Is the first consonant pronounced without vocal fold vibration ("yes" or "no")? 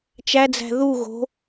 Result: yes